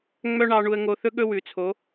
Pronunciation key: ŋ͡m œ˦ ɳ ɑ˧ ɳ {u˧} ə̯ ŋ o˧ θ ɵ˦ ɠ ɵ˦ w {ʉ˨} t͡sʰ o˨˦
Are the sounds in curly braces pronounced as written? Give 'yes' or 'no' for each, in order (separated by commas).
yes, yes